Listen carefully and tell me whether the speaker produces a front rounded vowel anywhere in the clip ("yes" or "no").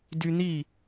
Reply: yes